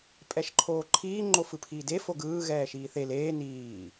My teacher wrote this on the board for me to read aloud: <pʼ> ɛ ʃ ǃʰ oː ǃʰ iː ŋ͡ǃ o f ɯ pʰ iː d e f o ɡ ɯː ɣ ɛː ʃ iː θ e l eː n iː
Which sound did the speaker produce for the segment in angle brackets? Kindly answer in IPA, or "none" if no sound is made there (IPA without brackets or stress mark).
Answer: pʼ